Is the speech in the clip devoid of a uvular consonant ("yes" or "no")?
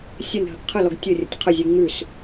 no